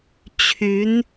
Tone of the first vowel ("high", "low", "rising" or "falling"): rising